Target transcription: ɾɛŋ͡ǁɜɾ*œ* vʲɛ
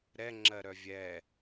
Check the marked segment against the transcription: correct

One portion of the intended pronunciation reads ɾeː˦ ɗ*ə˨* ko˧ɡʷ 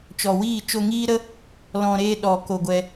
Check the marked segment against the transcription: incorrect: ɔ˨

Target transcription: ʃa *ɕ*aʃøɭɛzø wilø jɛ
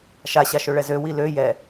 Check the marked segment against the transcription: correct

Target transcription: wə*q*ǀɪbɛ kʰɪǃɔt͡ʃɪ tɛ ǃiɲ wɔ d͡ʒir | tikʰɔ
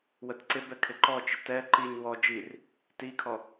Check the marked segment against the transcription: incorrect: t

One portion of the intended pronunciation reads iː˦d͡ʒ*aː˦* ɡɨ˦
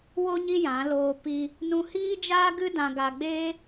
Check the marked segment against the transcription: correct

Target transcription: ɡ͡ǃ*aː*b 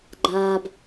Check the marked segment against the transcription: correct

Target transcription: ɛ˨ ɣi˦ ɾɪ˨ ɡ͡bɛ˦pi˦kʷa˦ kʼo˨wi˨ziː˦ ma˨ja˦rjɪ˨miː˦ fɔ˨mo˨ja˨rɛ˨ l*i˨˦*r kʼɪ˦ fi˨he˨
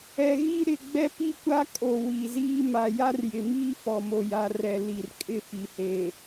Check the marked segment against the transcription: incorrect: i˨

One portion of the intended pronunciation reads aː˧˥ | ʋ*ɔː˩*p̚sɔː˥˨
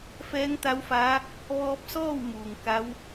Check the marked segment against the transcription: incorrect: ɔː˧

